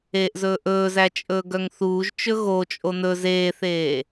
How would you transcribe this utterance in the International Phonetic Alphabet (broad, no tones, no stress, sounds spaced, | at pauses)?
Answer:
eː ʔ z ɵː ʔ ɵː z æ t͡ʃʼ ɵː ɡ œ ŋ θ uː ʒ t͡ʃ ɵ ɣ o t͡ʃʼ o n ɵ z eː θ eː